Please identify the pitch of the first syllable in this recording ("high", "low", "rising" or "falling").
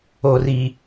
low